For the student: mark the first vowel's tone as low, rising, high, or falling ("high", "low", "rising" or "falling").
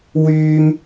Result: high